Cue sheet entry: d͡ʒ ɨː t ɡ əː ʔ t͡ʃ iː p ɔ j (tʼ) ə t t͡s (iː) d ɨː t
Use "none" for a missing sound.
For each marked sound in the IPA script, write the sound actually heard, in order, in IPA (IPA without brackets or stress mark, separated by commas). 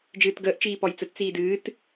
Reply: t͡s, iː